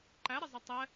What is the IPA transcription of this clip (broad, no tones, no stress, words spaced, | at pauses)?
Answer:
ǃæɾɪzˤə tˤɛ